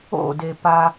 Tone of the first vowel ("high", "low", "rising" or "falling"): falling